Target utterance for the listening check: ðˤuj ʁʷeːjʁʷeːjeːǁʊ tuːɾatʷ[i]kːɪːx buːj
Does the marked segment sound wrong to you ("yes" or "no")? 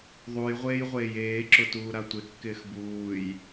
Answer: yes